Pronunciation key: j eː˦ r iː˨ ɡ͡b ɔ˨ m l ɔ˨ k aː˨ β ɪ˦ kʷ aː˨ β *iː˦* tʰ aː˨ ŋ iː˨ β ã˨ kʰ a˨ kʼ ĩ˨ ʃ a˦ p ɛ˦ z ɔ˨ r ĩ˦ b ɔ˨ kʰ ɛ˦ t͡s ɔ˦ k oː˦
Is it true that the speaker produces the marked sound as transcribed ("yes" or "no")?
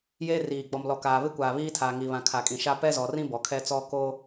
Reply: yes